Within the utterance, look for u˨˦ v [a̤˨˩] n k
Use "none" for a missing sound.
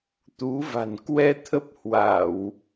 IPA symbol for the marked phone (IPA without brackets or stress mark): a̤˨˩